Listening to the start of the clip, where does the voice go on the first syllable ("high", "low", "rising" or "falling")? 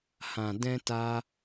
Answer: low